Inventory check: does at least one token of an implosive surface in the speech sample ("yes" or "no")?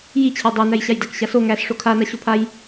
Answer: no